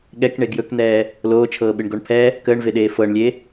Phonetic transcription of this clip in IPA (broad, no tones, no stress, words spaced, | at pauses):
ɠɛkɳe ɡjɵkn̪ɛː | loːt͡ʃʰɤːɓɨɳɡoɳ pʰɛ | kəːɳveɗeː fɤɳlʲe